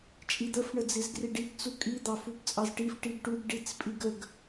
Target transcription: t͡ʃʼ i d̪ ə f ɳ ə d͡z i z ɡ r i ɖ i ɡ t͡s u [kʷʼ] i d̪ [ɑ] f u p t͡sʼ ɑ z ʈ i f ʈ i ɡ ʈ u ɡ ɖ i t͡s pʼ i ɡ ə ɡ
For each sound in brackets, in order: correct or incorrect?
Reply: incorrect: kʼ, correct

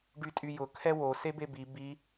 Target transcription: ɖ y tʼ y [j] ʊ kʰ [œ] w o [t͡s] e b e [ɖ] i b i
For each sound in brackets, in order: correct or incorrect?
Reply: correct, incorrect: ɛ, incorrect: s, incorrect: b

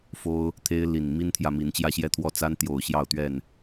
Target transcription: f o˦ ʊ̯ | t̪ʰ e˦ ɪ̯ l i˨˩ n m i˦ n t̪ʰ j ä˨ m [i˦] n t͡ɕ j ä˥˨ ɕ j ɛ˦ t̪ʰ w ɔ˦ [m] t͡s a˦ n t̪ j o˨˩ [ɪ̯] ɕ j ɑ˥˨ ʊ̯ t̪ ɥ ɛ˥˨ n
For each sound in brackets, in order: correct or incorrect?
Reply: incorrect: i˨˦, incorrect: none, incorrect: ʊ̯

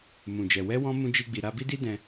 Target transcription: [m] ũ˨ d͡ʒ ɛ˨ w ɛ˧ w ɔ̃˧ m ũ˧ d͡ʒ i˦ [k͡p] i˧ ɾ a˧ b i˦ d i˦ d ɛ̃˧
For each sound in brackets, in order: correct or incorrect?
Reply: correct, incorrect: ɡ͡b

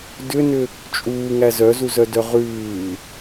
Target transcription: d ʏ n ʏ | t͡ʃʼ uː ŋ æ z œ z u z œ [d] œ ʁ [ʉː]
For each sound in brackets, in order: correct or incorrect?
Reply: correct, correct

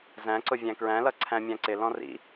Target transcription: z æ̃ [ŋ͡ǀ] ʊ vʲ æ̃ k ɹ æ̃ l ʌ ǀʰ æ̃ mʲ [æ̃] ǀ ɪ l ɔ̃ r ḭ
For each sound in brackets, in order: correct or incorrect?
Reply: incorrect: ǀ, correct

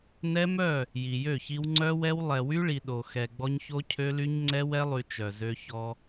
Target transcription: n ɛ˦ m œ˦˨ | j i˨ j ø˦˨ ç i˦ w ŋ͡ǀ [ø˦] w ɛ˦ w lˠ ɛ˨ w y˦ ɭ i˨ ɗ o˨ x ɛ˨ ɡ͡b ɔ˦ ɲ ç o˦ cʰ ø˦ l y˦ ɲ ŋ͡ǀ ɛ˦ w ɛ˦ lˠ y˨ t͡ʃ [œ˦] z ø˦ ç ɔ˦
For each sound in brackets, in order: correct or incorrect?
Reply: incorrect: œ˦, incorrect: œ˨

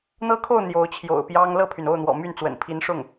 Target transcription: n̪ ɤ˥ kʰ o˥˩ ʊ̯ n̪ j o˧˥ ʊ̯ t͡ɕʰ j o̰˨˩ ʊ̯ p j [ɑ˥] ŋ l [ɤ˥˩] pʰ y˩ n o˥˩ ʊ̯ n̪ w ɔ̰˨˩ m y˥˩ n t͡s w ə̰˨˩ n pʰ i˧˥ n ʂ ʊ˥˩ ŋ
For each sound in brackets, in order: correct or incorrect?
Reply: correct, correct

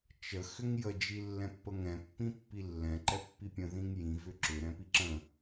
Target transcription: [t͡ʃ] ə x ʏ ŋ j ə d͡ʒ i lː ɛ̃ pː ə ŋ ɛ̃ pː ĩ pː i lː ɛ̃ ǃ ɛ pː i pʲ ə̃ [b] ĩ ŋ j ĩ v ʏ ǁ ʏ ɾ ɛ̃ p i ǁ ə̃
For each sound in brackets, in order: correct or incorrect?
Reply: correct, incorrect: ð

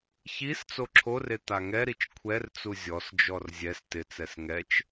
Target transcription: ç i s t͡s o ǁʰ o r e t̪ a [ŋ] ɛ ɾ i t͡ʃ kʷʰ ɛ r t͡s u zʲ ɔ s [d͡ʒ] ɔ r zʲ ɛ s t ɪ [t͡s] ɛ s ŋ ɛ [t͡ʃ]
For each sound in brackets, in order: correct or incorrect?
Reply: correct, correct, correct, correct

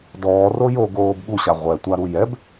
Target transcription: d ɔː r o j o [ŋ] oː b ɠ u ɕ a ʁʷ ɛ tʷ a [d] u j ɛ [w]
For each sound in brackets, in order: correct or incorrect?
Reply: incorrect: ɡ, incorrect: ɾ, incorrect: b

